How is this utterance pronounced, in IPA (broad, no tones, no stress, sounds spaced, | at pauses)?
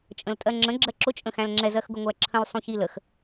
t͡ʃʼ ə̃ l tʼ ɜ ŋ͡ǁ ə̃ ɡ͡ǁ ɜ ǁ ʊ t͡ʃʼ ə̃ x æ̃ l ŋ͡ǁ ɛ z ɜ x ɡ ʊ ŋʷ æ ǁʰ ə̃ l sˤ ũ ç i l ə x